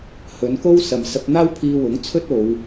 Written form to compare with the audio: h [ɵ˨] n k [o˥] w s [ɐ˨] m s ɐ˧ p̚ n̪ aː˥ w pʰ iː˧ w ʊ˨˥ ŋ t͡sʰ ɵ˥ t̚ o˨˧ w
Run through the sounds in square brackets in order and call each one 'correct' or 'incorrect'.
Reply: incorrect: ɵ˨˧, correct, correct

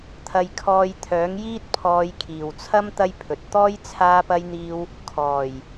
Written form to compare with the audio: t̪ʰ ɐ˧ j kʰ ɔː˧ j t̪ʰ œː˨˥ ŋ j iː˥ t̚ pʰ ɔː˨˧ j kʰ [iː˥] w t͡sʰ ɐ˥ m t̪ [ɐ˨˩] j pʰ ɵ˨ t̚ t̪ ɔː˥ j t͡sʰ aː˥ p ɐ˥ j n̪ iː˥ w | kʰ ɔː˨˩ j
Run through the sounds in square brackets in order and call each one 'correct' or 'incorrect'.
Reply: incorrect: iː˨˩, incorrect: ɐ˥

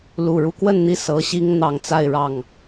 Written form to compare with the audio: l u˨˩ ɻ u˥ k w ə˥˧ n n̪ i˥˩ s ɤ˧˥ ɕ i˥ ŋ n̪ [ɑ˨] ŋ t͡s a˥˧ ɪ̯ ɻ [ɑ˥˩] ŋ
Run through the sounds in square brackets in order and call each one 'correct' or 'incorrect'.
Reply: incorrect: ɑ˧˥, correct

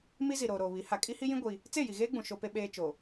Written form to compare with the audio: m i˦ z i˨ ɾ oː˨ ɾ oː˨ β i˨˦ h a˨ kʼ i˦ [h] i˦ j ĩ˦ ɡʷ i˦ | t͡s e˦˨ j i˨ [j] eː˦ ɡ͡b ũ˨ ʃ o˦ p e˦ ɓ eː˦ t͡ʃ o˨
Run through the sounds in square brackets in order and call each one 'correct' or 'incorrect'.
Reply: correct, incorrect: ɣ

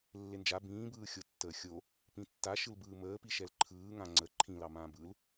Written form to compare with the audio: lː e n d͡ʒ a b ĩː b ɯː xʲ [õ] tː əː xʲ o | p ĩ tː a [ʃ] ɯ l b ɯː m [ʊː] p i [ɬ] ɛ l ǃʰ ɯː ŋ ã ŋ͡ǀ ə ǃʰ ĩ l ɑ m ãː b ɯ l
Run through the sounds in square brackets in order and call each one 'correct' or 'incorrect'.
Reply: incorrect: o, correct, incorrect: əː, incorrect: ʃ

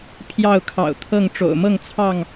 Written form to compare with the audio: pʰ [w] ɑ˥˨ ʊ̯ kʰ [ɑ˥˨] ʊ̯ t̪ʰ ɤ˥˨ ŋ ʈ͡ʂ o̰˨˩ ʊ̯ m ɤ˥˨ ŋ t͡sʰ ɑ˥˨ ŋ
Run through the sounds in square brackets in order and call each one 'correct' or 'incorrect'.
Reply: incorrect: j, incorrect: ɑ̰˨˩

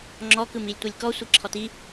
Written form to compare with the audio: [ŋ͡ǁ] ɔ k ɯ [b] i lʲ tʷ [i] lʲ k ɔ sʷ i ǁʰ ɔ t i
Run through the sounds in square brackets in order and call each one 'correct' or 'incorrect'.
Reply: correct, incorrect: m, correct

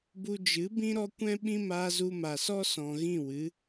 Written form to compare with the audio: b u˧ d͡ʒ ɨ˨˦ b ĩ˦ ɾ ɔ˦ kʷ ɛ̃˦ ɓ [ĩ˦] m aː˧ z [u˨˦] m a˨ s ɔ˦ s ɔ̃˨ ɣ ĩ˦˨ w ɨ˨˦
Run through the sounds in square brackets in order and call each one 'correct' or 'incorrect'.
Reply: correct, incorrect: u˧

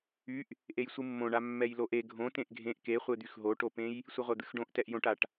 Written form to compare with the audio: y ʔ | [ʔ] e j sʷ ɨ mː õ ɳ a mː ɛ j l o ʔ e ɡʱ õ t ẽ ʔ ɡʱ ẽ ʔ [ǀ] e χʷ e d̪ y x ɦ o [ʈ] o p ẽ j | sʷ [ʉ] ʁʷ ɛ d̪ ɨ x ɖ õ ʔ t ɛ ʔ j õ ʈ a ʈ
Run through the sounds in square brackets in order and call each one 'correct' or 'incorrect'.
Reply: correct, incorrect: k, correct, incorrect: ɨ

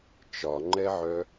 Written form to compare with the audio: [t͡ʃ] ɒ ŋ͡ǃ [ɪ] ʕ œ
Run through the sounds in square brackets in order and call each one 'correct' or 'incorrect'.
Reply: correct, incorrect: ɛ

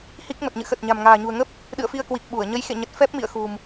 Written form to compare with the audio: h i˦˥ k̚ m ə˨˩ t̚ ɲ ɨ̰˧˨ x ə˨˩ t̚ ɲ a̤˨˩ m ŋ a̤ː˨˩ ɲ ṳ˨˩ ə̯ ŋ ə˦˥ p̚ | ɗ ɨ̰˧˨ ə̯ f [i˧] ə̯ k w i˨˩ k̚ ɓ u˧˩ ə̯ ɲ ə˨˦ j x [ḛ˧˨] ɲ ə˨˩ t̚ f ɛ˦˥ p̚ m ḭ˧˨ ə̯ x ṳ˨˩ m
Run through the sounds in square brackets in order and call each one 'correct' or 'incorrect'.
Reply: correct, correct

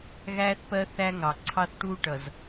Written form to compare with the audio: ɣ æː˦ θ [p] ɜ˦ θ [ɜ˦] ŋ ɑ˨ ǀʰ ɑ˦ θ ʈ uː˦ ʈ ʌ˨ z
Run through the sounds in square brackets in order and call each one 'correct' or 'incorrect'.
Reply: correct, incorrect: æ˦

